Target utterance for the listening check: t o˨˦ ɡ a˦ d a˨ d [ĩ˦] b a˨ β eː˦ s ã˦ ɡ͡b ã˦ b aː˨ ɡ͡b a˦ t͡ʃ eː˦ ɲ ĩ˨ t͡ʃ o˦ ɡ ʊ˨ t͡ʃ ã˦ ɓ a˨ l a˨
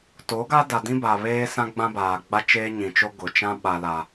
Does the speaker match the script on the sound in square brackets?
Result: yes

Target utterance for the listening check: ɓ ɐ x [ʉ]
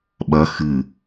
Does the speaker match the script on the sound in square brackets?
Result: no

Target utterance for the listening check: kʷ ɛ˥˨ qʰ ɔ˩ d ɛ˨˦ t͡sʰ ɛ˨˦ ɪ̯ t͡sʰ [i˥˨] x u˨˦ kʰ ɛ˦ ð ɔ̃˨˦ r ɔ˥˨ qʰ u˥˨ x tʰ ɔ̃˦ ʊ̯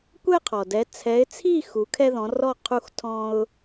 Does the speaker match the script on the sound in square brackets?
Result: yes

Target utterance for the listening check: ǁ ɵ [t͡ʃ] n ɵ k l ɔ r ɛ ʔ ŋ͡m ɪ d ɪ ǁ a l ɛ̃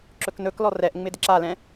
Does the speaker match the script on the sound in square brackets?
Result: no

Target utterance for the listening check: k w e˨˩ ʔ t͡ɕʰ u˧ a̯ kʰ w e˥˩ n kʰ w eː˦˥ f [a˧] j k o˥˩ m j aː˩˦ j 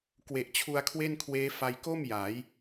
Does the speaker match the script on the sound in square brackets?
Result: yes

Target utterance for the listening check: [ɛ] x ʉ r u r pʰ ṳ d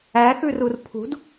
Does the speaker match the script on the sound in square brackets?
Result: no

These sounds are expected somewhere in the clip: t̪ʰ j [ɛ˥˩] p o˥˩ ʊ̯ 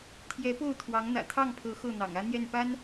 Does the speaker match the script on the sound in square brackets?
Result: no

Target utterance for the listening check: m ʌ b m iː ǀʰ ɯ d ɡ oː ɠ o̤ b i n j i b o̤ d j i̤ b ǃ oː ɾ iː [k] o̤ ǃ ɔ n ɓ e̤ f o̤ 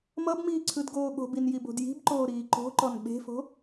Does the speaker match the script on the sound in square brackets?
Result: no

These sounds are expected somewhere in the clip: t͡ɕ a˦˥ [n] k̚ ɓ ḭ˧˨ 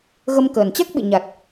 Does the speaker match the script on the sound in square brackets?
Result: no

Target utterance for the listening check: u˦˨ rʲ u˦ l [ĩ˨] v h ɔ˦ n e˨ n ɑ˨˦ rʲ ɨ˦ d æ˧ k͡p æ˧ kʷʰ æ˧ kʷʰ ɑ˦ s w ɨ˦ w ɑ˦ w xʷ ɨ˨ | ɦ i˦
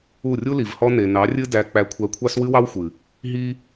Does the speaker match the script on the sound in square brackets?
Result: no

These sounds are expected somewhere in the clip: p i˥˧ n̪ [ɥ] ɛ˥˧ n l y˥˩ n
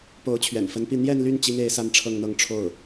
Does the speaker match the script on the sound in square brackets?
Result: no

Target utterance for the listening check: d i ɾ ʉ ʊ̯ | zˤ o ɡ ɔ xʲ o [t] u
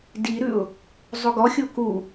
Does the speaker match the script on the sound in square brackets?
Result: no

